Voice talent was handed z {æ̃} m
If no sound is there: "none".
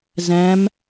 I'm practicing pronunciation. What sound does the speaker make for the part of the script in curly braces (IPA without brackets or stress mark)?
æ̃